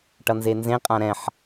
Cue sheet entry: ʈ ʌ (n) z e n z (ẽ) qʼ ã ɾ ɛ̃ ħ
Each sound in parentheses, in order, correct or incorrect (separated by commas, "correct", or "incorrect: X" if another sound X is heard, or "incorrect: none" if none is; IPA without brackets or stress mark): correct, correct